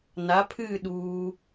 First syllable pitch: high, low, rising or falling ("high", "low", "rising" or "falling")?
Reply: rising